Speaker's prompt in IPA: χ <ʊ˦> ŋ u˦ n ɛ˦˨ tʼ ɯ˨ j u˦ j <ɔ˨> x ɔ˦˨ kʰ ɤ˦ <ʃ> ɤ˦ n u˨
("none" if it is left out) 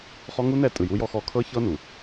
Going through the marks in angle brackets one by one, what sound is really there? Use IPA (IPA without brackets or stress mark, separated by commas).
ɔ˦, ɔ˦, ç